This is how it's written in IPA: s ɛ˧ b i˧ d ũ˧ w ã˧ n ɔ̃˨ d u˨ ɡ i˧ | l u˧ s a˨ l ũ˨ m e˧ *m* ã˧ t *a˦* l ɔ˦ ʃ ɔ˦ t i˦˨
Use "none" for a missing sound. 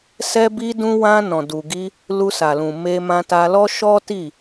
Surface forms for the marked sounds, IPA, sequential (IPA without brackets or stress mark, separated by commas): m, a˧